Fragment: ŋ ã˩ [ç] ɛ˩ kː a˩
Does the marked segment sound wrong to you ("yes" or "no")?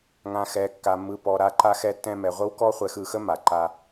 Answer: yes